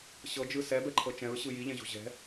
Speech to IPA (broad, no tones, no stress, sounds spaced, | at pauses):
ɕ ɤ d͡ʒ ɯ s ɛ b ɛ ǃʰ ɤ t͡ʃ ɛ̃ ɹ ɕ ɯ j i ʎ ɛ̃ ʑ o̤ ʑ ɛ̤